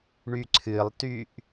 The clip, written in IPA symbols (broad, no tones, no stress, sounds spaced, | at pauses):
ɳ y ǀʰ ɨ lˠ t y ʔ